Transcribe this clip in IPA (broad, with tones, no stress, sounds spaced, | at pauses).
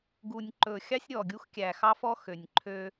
ɡ u˨ nʲ ǃ ɵ˨ xʲ ɑ˦ sʲ ɾʲ ɔ˨ ɡʲ u˦ x kʲ æ˨ x ɑ˦ f ɔ˦ x ø˨ nʲ ǃʰ ø˦